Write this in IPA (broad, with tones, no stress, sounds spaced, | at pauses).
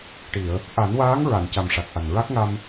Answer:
ʈ i˨˩˨ ə̯ | ʔ a˨˩˦ n w aː˧˥ ŋ ɹ a˨˩˨ n c a˨˩ m ʂ a˨˩ k̚ ʔ a˨˩ n ɹ a˦˥ k̚ ŋ a˧ m